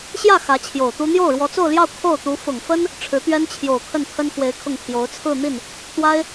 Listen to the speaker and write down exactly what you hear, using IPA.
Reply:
ɕjä˥˩ xä˧˥t͡ɕʰjo˨˩ʊ̯t̪u˥ n̪jo˥˩ʊ̯ɻwɔ˧˥t͡so˥˧ʊ̯ljɑ˥˧ʊ̯ kʰo˥˩ʊ̯t̪u˧˥ fʊ˨˩ŋfə˥n | ʈ͡ʂʰɻ̩˧˥t̪ɥɛ˥nt͡ɕʰjo˨˩ʊ̯ kʰə˥˩npʰə˥nxwe˧˥ɪ̯ kʰʊ˥˩ŋpʰjo˧˥ʊ̯ t͡sʰɹ̩˥˧n̪i˥˩n | t̪wa˥ɪ̯

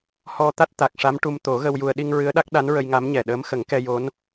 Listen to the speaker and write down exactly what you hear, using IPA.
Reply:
hɔ˧ t̪a˦˥t̚t̪a˨˩k̚ʂa˧˥m ʈu˧m t̪o˨˩˦ɣə˧wju˧ə̯ ɗi˧ŋ ɹɨ˧˥ə̯ɗa˦˥k̚ ɗa˧˥nɹə˧jŋa˧˥mɲɛ˨˩ ɗəː˧˥m xə˨˩˦ŋkɛ˧jo˧˥n

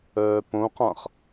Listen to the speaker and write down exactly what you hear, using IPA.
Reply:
œːpõqãχ

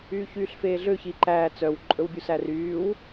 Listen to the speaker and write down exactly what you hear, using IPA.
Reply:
yːçyːɬfeːɮø çiǃæː t͡sœw ǃʼɵwbʲusæryːw

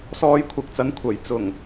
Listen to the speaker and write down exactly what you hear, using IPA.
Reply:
sɔː˧jkʷʰɐ˨k̚t͡sɐ˨˥n kʷʰɐ˨˩jt͡sʊ˨˩ŋ

